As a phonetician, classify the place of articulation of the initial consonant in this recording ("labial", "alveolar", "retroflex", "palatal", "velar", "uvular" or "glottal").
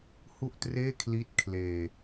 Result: glottal